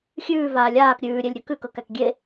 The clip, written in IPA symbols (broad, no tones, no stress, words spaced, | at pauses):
xʲʉːvaː lʲaːk ɾʲʉːɾʲelʲɾʲɵ kʉkɤkæk ɡʲe